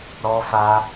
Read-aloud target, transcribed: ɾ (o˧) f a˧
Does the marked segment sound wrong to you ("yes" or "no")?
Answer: yes